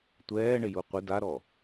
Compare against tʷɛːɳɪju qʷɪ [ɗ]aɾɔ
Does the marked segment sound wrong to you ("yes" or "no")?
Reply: yes